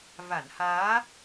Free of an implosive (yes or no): yes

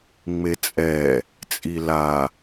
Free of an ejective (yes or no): no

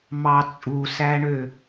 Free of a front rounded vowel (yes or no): no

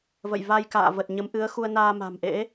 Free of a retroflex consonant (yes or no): yes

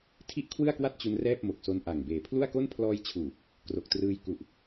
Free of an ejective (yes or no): yes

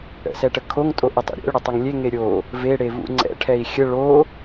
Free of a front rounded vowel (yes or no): no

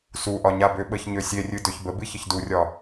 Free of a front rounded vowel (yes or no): no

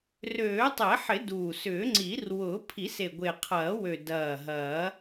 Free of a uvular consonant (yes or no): no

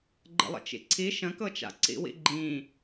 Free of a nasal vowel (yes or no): no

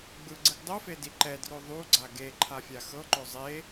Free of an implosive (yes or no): yes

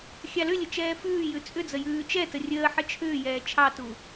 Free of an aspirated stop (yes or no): no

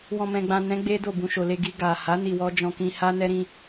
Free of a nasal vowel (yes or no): no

